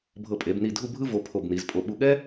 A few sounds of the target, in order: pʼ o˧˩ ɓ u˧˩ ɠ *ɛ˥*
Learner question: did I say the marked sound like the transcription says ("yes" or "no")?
yes